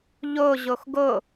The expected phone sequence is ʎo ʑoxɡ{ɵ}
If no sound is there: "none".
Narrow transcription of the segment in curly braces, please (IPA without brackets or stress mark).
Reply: o